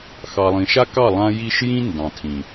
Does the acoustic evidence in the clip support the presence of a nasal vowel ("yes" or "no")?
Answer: yes